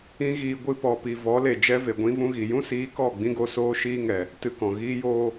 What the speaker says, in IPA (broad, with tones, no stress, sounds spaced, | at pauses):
ĩ˦ ɣ iː˧ ɡʷ ɨ˧ p ɔ˨ p i˨ v ɔ˨˦ l e˨ d͡ʒ ɛ˦ v e˨ ɡʷ ĩ˦ v ũ˦ ɣ i˨ j ũ˦ s iː˨˦ k ɔ˦˨ ɡ͡b ĩ˦ ɡ o˧ s oː˦ ʃ iː˦ ŋ ɛ˨ | t ɨ˧ k ɔ̃˨ ɣ iː˦ j oː˧